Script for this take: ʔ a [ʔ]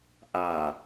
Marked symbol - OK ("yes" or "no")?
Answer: no